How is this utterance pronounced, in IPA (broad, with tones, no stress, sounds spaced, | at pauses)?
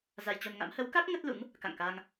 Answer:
z a˧ j t͡ɕ o˧ n ŋ a̰˧˥ m h ə˨˦ w k a˦˥ k̚ ŋ ə˦˥ t̚ l ṵ˧˥ ŋ | k a̰˧˨ ŋ k aː˧ ŋ